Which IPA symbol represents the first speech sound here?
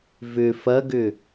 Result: v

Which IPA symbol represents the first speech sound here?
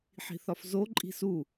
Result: ħ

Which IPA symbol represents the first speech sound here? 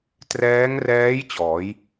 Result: t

